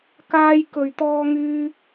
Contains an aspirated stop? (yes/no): no